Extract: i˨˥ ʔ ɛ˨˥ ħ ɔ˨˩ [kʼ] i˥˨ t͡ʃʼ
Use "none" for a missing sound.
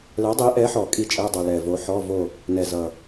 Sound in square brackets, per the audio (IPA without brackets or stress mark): kʼ